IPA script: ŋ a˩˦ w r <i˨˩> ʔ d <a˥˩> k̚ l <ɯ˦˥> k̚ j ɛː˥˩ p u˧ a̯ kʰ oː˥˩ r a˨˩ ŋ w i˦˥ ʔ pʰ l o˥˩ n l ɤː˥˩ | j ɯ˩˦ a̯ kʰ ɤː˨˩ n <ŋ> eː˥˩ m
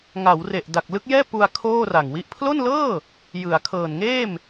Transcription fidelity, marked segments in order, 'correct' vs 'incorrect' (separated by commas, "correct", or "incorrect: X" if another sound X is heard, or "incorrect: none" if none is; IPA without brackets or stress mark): incorrect: e˨˩, incorrect: a˨˩, correct, correct